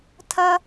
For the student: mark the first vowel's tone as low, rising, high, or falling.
high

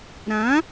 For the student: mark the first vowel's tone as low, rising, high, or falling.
rising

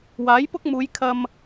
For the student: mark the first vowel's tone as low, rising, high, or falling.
rising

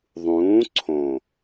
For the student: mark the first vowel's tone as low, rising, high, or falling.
rising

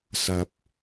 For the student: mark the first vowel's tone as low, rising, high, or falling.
low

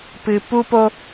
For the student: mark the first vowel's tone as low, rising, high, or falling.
low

